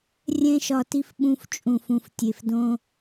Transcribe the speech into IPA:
rʲ ɛ̃˦ ʃ ɒ˧ t i˦ f ɓ ũ˧ f t͡ʃʼ ũ˨ f ũ˨ f tʲ e˨ f d õ˧

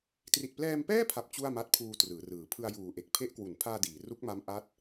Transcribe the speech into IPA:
t r i˨˩ t̚ p l ɛː˧ m p ɛː˥˩ pʰ a˨˩ p̚ t͡ɕ u˥˩ a̯ m a˦˥ t̚ pʰ uː˧ t r ɯː˩˦ r ɯː˨˩ pʰ ɯ˧ a̯ j uː˨˩ ʔ e˨˩ k̚ pʰ e˦˥ ʔ k w u˩˦ n pʰ aː˧ d iː˩˦ r u˦˥ k̚ m a˦˥ m ʔ a˦˥ t̚

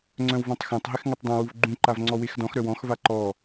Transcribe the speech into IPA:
ŋ͡ǀ œ̃ w v ɔ̃ tˤ x œ̃ tˤ ɦ ɪ x ŋ œ tˤ dˤ ã w u v ɡ͡ǃ ũ ǃ a v ŋ͡ǀ ɔ w e x d ɔ̃ x ɾ œ w ɔ̃ x v a ǃ ɔ

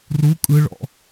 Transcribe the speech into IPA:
r u kʼ ɯ ɭ ɔ̰

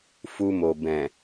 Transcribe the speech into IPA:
f u˧ m o˨ b ɛ̃˨

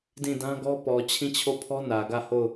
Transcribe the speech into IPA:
d ĩ˦˨ d ã˦ ɡ ɔ˦ p ɔ˨ t͡ɕʰ ĩ˦˨ t͡ɕʰ o˦˨ pʰ ɔ˦ n ä˨ ɡ ä˦˨ h o˦˨ ʊ̯

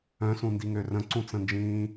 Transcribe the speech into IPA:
œ̃ s ũ n d i ŋ ø r ə̃ ǀ ũ t͡s ə̃ n d͡ʒ ĩː

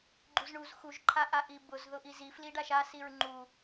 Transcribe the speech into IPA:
ɡ͡ǃ u z ɳ u z x u ʒ ǃʰ a ʔ a ʔ i b ʊ z ð ʊ ʔ i z i f l i ɖ a ʃ a s i ɹ ŋ͡ǃ u

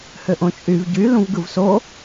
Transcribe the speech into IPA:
h ø ʔ õ t͡ʃʼ y v ɟ y l ũ v ɡ ɯ v s o

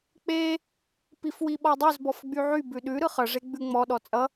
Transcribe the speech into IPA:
k͡p e | p i f w i ɓ ɔ dˤ ʉ z b ɔ f ɡ͡b y ʕ y b ʉ ɗ ʉ ɾ ɯ χ ʌ ʐ e ɡ͡b ʉ ŋ͡m ɔ ɗ ɔ t͡sʼ ʌ

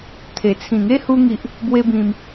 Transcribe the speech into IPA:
t̪ʰ e˨˩ t͡sʰ ĩ˨˩ ŋ e˦ h u˧ ŋ i˨ ʔ | b w e˦ b ĩ˧ m

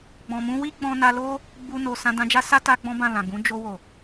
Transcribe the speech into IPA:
ɡ͡b ɔ̃˨ m ũ˧ w i˦ ɡ͡b ɔ̃˧ n a˧ l o˦ | ɡ͡b u˧ n o˨ s ã˧ d ã˧ d͡ʒ a˦ s a˦ t a˧ ɡ͡b ɔ̃˦ b ã˦˨ l ã˨ ɡ ũ˨˦ d͡ʒ o˧ w o˨

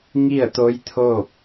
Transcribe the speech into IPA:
ŋ i˥˨ ə̯ t̪ o˧˥ j t̪ʰ oː˥˨ p̚

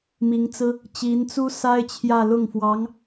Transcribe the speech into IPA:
m i˧˥ ŋ t͡s ɹ̩˥ | t͡ɕ i˧˥ n t͡s u˥ s a˥ ɪ̯ t͡ɕʰ j ä˥˧ l ʊ˥˩ ŋ f w ɑ˧˥ ŋ

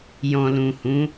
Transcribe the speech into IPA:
j ɔ̃˨ l ũ˨ h ũ˨˦

